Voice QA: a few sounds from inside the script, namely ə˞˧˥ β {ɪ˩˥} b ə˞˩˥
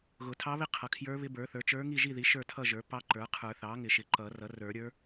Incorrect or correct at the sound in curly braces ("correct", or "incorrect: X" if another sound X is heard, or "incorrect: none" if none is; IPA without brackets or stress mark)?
incorrect: ɪ˧˥